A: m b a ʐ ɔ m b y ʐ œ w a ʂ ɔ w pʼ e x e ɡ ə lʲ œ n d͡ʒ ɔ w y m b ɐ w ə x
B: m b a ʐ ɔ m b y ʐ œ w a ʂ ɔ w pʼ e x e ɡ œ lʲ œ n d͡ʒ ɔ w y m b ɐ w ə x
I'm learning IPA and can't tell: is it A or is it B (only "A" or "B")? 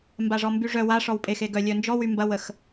B